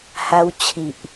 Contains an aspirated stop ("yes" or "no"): yes